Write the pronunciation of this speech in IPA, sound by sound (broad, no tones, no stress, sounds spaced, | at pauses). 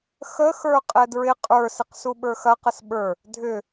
x ə x ə˞ qʼ ɛ d ɹ ɪ qʼ ə˞ s ɪ q s u ɓ ə˞ x ɐ q ə s ɓ ə˞ | dʱ ʏ